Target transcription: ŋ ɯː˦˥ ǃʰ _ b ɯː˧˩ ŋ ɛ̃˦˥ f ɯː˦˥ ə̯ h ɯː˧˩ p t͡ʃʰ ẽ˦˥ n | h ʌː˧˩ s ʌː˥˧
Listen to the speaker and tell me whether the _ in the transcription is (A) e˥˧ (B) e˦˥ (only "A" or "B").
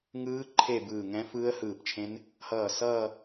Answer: A